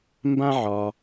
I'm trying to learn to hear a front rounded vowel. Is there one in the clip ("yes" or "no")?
no